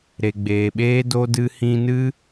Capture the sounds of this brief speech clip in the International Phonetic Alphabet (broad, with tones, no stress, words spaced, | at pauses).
ɾe˨ɡ͡beː˨ɓeː˦ do˦ dɨ˦hĩ˦ nɨ˦